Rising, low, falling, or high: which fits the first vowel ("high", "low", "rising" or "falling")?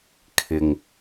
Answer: low